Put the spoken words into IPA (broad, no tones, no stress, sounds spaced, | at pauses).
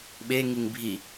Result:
ɓ e ŋ i ŋ bʱ i